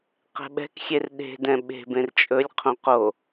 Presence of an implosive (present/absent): present